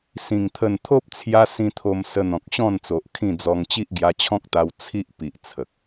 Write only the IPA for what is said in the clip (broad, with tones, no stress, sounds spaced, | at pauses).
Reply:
s ĩ˨˩ ŋ t̪ʰ ə˨˩ n t̪ʰ o˦ p̚ t͡sʰ j a˧ s ĩ˧ t̪ʰ o˧ m s ə˧ n̪ ɔ̃˨ k̚ ɕ ɔ̃˥˧ n t͡s o˨ ʔ kʰ ĩ˥˧ d͡z ɔ˧ ŋ t͡ɕ i˦ ʔ ɡ j a˧ t͡ɕʰ ɔ̃˦ k̚ t̪ a˧ w t͡sʰ i˦ ʔ p i˨ ʔ t͡sʰ ə˨ k̚